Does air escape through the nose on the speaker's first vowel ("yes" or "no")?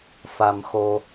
no